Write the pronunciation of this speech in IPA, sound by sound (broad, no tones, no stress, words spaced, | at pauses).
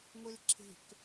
ŋʷelǁʰe̤k